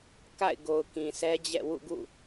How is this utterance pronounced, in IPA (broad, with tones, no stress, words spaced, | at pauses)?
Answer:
ka̰˦˨ɪ̯ɡo˨ʊ̯ kĩ˨sʰɛ˦d͡ʑɛ̰˦˨ wṵ˦˨ɡṵ˦˨